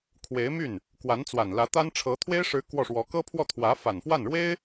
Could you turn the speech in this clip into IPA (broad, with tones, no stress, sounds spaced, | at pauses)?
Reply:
kʰ w e˧˥ ɪ̯ m y˥˩ n | k w a˧˥ n t͡s w a˨˩ n l ä˧˥ t̪ a˥ n ʈ͡ʂʰ ɤ˧˥ t̪ʰ w e˥ ɪ̯ ʂ ɻ̩˧˥ k w ɔ˥˩ ʂ w ɔ˧˥ k ɤ˥ pʰ w ɔ˥˩ t̪ʰ w ä˧˥ f a˨˩ n f w a˥˩ n ɻ w e˥ ɪ̯